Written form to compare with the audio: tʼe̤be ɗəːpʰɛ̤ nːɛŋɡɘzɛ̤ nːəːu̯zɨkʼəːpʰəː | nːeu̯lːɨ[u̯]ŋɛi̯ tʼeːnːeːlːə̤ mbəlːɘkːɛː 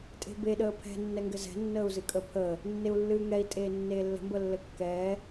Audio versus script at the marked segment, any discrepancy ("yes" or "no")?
yes